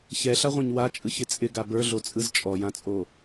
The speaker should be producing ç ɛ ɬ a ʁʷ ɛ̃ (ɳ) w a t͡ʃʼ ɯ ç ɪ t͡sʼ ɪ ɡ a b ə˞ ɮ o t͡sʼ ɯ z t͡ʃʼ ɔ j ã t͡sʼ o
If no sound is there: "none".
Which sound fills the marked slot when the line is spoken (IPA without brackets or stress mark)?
ɲ